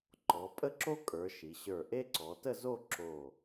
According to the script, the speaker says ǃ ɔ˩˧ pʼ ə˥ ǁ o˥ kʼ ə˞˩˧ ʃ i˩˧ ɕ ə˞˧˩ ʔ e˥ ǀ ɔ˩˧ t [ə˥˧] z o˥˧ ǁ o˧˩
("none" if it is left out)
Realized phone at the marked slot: ə˥˧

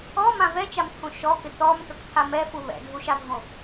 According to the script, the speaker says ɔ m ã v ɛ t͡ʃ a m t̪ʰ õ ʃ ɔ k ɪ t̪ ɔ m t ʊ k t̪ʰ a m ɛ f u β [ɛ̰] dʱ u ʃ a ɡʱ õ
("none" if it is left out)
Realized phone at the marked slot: ɛ̰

